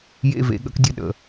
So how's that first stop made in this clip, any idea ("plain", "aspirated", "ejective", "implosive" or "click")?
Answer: implosive